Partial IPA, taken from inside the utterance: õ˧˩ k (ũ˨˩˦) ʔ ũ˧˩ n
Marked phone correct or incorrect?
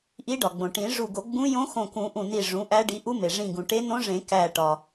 correct